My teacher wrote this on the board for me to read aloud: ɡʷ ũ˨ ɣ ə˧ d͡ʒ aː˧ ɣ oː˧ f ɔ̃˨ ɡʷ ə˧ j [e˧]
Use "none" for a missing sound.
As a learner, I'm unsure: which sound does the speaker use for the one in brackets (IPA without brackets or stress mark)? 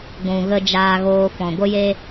e˧